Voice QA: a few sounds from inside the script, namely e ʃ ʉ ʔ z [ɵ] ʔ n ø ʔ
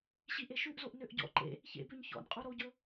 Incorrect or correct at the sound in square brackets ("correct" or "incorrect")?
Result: incorrect